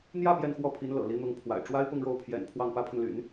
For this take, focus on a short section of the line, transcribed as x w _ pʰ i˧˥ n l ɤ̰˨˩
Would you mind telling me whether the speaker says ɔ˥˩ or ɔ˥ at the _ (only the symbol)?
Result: ɔ˥˩